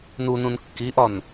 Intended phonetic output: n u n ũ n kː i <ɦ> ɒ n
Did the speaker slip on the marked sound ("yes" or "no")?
yes